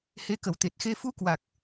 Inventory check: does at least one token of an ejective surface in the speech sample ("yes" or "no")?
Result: no